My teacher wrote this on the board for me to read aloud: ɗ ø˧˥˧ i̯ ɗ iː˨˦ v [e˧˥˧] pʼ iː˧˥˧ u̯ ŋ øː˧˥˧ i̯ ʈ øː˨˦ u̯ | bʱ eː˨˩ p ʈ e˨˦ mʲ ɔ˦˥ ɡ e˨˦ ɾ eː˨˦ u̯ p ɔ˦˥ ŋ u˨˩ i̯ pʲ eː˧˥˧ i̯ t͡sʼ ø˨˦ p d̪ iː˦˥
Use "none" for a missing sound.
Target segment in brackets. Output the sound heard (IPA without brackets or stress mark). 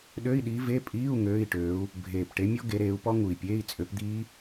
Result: e˧˥˧